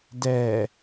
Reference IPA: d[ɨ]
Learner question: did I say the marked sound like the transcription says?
no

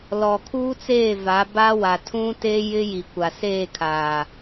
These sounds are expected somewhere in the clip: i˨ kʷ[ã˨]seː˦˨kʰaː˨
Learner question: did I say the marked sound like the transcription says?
no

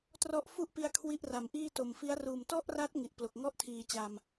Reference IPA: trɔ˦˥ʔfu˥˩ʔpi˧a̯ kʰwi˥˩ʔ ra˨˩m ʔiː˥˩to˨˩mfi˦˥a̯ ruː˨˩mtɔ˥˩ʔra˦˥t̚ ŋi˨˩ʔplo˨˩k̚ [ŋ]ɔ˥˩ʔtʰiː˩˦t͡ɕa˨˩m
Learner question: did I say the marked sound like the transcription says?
yes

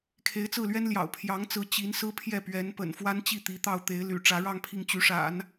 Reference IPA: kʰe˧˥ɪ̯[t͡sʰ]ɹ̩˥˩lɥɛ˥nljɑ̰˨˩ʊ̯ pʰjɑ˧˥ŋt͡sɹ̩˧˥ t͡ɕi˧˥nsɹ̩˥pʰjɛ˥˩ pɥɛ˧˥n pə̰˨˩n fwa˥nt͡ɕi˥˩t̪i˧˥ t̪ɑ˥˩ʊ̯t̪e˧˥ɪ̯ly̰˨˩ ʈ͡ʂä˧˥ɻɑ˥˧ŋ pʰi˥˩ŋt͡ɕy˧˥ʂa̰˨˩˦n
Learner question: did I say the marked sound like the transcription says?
no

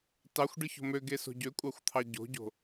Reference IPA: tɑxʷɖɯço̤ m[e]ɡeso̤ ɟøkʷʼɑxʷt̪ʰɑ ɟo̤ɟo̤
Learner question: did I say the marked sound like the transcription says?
no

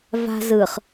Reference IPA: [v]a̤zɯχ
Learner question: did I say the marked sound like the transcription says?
yes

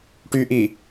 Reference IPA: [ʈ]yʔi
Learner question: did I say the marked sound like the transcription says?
yes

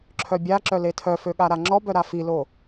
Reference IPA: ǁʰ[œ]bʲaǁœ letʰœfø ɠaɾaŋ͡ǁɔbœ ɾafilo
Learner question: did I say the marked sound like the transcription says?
yes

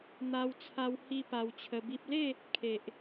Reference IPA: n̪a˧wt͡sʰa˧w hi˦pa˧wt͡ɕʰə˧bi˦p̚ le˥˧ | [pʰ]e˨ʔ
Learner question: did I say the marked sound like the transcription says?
no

